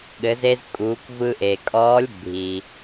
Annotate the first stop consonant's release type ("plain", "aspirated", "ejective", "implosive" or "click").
implosive